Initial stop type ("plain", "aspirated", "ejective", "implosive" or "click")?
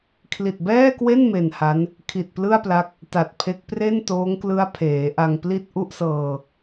aspirated